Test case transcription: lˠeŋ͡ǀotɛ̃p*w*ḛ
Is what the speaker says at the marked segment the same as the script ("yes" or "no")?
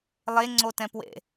yes